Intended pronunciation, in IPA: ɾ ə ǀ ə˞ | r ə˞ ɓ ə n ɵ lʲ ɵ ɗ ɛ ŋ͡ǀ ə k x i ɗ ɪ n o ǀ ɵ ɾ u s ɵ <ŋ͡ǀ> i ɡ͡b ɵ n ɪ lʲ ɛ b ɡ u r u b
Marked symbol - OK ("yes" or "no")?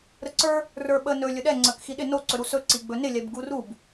no